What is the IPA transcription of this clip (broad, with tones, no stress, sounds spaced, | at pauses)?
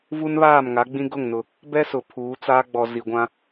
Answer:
v u˦ n β aː˦˨ m ŋ a˨˦ ɡ͡b ĩ˦ ɡ ʊ˦˨ ŋ n ʊ˨ | b ɛ˦ s ʊ˨ pʰ uː˨˦ t͡s aː˦ ɡ͡b ɔ˨ z i˨ ɡʷ ã˦